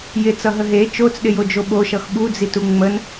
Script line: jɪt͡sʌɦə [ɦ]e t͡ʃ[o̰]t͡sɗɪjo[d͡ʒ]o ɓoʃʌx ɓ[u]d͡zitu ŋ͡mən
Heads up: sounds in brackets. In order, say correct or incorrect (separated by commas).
correct, incorrect, correct, correct